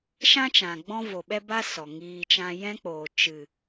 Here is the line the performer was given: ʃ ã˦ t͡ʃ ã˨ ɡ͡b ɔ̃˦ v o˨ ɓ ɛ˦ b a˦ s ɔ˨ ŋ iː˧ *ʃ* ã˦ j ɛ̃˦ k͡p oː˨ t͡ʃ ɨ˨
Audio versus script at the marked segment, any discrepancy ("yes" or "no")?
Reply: yes